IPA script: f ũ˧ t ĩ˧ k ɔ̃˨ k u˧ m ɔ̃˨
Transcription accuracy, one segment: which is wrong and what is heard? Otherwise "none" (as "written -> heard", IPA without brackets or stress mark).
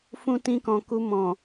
none